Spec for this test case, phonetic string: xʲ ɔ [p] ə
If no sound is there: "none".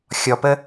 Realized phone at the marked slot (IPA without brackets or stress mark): p